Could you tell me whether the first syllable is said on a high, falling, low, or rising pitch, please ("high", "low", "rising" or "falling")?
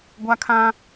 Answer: high